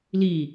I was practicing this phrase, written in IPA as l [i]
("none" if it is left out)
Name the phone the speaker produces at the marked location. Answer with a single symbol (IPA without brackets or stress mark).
i